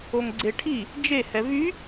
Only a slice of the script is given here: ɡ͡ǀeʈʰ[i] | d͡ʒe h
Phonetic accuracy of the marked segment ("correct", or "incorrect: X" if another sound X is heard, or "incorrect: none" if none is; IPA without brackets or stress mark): correct